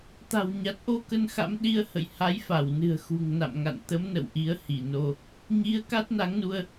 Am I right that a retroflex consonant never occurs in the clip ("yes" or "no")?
yes